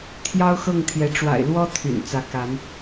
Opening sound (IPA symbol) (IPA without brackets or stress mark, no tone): t̪ʰ